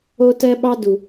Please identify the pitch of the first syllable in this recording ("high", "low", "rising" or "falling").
high